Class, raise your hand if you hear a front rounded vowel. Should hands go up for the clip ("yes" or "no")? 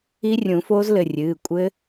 no